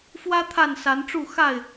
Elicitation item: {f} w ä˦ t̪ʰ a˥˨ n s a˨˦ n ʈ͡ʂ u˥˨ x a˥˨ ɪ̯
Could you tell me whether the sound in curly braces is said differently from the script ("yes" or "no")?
no